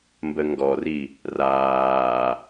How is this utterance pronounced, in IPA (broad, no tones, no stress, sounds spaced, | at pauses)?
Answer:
m b ə ŋ ɡ ɔ r i | r aː